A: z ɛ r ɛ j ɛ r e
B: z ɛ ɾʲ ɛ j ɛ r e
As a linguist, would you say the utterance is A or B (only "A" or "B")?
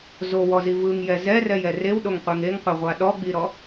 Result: A